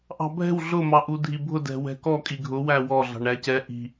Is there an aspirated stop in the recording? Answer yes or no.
no